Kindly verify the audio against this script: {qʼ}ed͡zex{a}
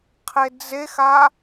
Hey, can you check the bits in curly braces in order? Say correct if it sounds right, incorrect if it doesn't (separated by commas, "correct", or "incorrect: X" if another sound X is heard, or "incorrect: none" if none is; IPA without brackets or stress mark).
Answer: incorrect: qʰ, correct